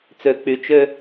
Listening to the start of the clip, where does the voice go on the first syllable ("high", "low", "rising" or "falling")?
low